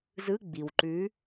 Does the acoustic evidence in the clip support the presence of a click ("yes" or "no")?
yes